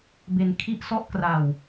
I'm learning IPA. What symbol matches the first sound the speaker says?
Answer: b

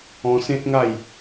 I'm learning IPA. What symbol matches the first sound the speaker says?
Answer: ɔ̃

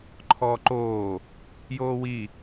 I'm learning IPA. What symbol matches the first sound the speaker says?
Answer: ǃʰ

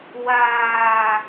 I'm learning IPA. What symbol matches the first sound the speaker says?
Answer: w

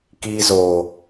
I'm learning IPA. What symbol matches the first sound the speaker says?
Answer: k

